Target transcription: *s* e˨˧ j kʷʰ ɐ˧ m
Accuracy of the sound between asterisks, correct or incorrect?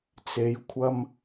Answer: incorrect